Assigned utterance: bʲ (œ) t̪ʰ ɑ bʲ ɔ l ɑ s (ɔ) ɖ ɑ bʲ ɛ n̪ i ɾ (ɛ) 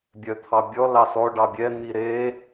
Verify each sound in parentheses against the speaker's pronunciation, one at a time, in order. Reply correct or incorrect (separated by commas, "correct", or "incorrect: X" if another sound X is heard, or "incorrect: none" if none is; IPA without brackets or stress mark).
correct, correct, incorrect: e